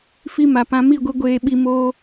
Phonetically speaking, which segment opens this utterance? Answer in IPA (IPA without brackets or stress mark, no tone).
f